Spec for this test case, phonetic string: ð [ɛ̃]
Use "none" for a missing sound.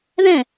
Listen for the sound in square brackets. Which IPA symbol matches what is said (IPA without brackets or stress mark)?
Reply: ɛ̃